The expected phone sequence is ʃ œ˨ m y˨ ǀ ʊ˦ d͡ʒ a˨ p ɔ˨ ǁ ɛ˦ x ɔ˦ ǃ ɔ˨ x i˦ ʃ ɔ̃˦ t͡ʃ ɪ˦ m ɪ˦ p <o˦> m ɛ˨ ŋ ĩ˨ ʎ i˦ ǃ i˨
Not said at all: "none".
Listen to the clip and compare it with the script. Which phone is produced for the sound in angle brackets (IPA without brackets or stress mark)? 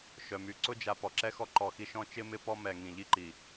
ɔ˦